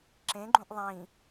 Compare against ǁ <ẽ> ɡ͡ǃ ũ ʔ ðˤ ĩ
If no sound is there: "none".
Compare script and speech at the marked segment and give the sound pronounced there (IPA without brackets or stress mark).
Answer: ẽ